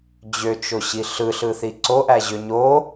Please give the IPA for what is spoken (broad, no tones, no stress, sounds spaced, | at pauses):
d͡ʑ ø t͡ʃ o ɕ i ɬ ɯ ɬ ɯ θ i ǀ o ʔ æ ʑ ø ɲ o